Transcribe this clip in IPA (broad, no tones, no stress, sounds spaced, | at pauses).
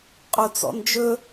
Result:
qʼ o t͡s ɔ̰ n d͡ʒ ɵ